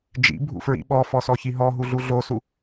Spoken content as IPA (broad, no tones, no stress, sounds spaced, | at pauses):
d͡ʒ ḭ bʱ ṵ f ɹ ḭ ɓ ɔ f ɔ s ɔ ç i ɦ ɔ ɦ u ɮ u ɮ o s u